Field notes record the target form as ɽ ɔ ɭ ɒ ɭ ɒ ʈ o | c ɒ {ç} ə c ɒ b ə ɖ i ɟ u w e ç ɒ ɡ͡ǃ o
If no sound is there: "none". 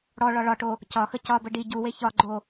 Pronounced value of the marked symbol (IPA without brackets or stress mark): x